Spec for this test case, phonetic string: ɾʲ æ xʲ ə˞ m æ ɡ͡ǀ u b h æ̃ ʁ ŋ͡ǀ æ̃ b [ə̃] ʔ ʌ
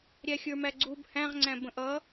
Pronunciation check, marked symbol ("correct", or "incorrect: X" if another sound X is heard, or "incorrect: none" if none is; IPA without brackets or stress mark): correct